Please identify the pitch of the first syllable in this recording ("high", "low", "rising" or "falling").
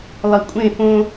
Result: low